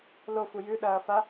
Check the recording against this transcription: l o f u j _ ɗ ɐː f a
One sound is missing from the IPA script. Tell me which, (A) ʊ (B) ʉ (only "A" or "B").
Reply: B